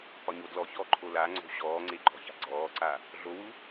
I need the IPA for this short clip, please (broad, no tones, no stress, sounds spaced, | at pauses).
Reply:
p ɒ ɲ o d l ɔ ç ɔː ǃʰ o l a ŋ͡ǀ o̤ ɕ ɔː ŋ͡ǀ e ǃ ɔ̤ ç a̤ ɡ͡ǀ ɔː ǀ a | ɮ o w u